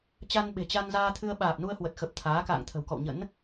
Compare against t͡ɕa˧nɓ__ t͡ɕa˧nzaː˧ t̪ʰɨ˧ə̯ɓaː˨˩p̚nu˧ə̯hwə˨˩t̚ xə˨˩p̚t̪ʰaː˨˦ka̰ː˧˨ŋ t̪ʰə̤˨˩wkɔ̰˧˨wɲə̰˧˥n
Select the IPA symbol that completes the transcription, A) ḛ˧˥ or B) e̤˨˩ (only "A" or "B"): B